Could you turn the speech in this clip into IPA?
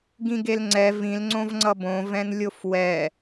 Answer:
ɡĩɡelŋ͡ǀɛ vĩl ŋ͡ǀõvŋ͡ǀʌbõ vɛ̃nlʲofwɛ

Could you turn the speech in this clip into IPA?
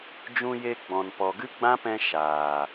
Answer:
d͡ʒũ˧je˧ɡ͡bɔ̃˨n pɔ˨ɡɨ˦ɡ͡bã˦pɛ̃˧ ʃaː˨

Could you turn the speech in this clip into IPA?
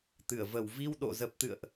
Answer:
t̪ɨ˧˩ə̯və˨˩w vi˧wɗo̰˧˨zə˨˩p̚ t̪ɨ̰˧˨ə̯ʔ

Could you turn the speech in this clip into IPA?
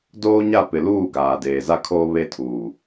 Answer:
doː˦ɲa˦˨ pɪ˨luː˦˨ ɡaː˨deː˨za˦kʰoː˦ βe˦tʰuː˨

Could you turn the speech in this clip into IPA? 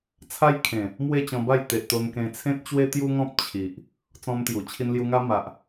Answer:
t͡sʰa˦jkʰẽ˨˩ | mwe˥˧t͡ɕɔ̃˧ba˥˧j t̪e˨ʔt̪o˧nkẽ˧ t͡sʰẽ˦t̚t͡ɕwe˦t̪ju˦ŋɔ̃˦p̚ t͡ɕʰi˨ʔ | t͡sɔ̃˧mt̪ju˨˩ t͡ɕʰi˧nlju˧ŋa˦ma˨ʔ

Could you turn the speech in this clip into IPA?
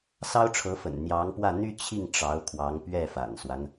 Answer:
sɑ˥ʊ̯ʈ͡ʂʰɤ˧˥fə̰˨˩n n̪jɑ˧˥ŋpwä˥˩ n̪y˥t͡ɕʰi˥˩ŋ ʈ͡ʂɑ˧˥ʊ̯kʰwɑ˧˥ŋpɥɛ˥˩ fa̰˨˩nswa˦n

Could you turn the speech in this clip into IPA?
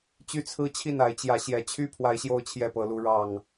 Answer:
t͡ɕy˦t͡sʰɹ̩˦t͡ɕʰi˥˨n a˨˦ɪ̯t͡ɕjä˨˦ ɕjɛ˨˩t͡ɕʰy˥˨ pʰwa˨˦ɪ̯ɕjo˨˦ʊ̯t͡ɕʰjɛ˨˩ pɤ˨˦lu˨˦ ɻɑ˨˩ŋ

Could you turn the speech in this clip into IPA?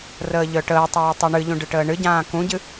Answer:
rəːʎœʈəːtˤuː tˤuɳɨʎũ ɖɨʈəːɳɨɟãː kũɟɨ

